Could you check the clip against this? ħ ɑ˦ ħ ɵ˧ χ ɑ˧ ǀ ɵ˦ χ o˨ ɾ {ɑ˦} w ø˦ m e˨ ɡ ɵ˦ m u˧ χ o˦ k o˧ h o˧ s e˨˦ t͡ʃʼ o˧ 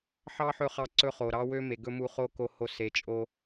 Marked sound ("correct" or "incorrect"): correct